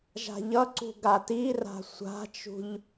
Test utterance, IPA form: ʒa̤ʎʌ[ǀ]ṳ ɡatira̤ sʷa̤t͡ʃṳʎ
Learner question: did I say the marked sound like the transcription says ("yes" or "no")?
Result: yes